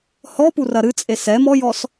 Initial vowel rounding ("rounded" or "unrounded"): rounded